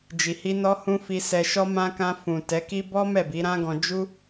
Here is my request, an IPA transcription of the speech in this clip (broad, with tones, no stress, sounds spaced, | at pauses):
d͡ʒ i˨ h i˧ n ɔ˧ h ũ˧ f i˧ s ɛ˧ ʃ ɔ˦ m ã˧ k ã˧ f ũ˨ t ɛ˨˦ k i˦ b ɔ˦ m ɛ˦˨ b i˨˦ ɾ ã˦ ɡ ɔ̃˧ d͡ʒ u˦